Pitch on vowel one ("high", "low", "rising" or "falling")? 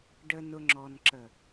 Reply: low